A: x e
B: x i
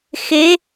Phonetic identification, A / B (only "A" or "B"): A